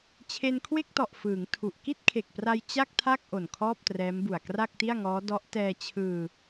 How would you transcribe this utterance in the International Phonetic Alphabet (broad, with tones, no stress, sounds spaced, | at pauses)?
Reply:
t͡ɕʰ e˧ n kʰ w e˥˩ k̚ t ɔ˨˩ ʔ f ɯː˩˦ ŋ tʰ u˨˩ ʔ k i˥˩ t̚ kʰ e˨˩ k̚ p r a˧ j t͡ɕ a˥˩ k̚ tʰ a˥˩ k̚ ʔ o˨˩ n kʰ ɔː˥˩ p̚ t r ɛː˦˥ m b u˨˩ a̯ k r a˥˩ k̚ t i˥˩ a̯ ŋ ɔː˦˥ d ɔ˦˥ ʔ t ɛː˧ t͡ɕʰ ɯː˧